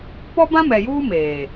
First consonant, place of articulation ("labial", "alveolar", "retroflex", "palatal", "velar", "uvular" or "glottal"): labial